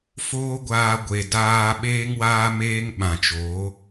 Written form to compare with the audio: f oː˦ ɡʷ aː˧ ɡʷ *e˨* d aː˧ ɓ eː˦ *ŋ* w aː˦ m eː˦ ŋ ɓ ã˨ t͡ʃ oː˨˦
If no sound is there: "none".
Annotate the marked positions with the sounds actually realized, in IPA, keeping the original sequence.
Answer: e˨, ŋ

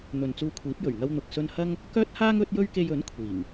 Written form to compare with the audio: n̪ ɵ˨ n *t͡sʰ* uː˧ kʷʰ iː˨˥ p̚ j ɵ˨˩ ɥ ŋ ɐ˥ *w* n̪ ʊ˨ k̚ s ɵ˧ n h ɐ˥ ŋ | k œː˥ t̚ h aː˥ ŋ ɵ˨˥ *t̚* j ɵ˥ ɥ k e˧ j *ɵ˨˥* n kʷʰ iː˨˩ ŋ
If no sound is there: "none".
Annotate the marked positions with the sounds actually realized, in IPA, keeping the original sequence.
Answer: t͡s, w, t̚, ɵ˨˥

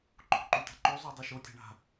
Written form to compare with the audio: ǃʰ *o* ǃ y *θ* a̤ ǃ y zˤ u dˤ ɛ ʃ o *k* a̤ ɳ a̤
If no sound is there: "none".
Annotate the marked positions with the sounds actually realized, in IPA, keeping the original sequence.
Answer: o̤, t, tʲ

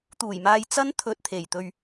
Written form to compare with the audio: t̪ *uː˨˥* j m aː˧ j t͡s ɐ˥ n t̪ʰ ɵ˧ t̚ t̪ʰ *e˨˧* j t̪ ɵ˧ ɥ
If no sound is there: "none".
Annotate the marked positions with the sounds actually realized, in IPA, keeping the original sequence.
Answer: uː˨˩, e˨˩

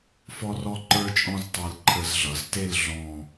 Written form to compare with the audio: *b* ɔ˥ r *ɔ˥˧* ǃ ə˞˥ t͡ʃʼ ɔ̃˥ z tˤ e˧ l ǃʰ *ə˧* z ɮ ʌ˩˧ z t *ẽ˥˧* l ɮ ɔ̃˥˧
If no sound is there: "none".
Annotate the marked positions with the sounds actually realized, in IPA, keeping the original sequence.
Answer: f, ɔ˥, ə˧, e˥˧

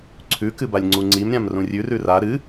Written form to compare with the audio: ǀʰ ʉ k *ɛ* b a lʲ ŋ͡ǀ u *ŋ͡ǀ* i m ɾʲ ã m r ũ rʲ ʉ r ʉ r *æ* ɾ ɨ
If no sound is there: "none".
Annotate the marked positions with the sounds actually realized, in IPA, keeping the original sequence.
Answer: ɨ, ŋ͡ǀ, a

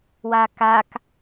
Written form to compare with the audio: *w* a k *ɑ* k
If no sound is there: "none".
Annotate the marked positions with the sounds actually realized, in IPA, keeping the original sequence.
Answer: w, a

